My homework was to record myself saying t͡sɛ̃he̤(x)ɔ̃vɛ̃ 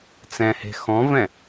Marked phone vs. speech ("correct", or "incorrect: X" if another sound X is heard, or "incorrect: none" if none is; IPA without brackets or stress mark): correct